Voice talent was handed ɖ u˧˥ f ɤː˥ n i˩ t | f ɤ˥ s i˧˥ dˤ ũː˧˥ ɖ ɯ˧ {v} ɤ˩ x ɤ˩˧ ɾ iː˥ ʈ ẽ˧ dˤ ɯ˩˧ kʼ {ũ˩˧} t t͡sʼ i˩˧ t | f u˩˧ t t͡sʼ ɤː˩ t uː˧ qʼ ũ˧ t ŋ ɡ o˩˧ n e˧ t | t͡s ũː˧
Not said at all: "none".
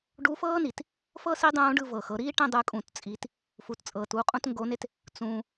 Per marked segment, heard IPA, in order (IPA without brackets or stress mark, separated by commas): v, ũ˩